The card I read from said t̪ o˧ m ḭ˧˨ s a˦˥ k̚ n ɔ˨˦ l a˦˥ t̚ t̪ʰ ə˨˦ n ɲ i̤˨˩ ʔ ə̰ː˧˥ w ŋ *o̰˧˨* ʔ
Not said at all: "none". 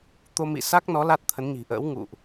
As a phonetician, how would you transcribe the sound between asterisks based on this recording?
ṵ˧˨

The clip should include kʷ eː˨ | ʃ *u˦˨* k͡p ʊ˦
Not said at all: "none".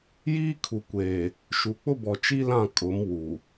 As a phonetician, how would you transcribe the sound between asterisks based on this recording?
u˨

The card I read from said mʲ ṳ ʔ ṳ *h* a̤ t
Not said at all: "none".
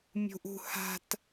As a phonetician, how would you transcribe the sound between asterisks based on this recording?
h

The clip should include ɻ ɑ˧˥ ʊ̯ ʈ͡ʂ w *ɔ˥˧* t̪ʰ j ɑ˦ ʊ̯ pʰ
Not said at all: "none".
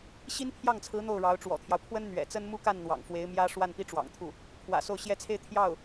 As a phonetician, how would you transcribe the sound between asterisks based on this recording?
ɔ̰˨˩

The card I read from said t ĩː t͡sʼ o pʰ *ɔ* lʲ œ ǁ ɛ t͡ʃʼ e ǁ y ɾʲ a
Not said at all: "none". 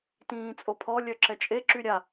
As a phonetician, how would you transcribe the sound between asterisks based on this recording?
ɔ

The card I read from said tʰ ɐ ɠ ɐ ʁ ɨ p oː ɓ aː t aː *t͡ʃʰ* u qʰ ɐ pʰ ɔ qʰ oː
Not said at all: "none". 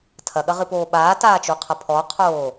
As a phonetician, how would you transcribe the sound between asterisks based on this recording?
t͡ʃ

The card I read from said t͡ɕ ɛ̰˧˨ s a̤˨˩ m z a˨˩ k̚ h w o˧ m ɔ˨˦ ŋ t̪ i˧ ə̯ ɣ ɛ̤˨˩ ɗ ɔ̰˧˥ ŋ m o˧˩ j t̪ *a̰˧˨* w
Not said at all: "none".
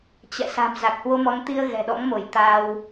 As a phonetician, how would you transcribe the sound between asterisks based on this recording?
a˧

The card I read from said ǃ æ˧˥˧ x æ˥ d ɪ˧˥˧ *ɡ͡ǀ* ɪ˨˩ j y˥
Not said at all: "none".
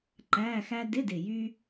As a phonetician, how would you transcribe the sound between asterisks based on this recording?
d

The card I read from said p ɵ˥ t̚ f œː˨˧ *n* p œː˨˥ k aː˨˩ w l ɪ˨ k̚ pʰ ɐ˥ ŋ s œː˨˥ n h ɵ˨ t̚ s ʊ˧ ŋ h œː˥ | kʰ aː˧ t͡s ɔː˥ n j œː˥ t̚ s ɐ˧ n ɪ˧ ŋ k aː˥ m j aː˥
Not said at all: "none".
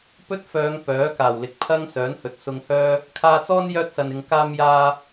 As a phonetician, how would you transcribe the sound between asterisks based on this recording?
ŋ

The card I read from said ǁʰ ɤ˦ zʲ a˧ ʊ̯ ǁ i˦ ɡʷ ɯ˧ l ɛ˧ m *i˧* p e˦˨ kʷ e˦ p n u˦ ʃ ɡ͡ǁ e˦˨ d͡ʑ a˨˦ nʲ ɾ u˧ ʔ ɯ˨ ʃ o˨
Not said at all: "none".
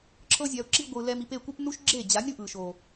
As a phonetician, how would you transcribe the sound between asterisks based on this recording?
i˧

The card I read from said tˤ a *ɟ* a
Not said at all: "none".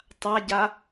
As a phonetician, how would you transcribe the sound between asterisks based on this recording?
ɟ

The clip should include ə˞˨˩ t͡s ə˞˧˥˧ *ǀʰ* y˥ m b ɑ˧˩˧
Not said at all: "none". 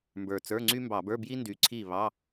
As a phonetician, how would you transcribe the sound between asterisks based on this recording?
ŋ͡ǀ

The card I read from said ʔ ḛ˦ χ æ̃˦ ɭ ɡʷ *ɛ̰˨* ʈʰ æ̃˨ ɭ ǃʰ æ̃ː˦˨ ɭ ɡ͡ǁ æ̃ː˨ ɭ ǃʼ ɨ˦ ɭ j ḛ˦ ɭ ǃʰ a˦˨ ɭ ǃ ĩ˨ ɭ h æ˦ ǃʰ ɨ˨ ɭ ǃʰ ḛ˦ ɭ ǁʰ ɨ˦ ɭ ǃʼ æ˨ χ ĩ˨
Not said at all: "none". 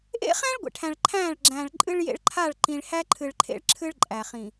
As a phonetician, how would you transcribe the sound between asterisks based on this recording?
ḛ˨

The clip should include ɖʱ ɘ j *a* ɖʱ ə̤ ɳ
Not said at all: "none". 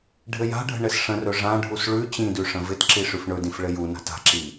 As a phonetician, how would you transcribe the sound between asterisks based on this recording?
a̤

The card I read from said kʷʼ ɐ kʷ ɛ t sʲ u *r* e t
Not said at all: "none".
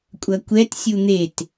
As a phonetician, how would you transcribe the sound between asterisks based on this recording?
n̪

